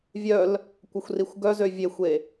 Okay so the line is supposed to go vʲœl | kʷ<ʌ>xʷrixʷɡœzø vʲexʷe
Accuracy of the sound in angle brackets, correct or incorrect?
incorrect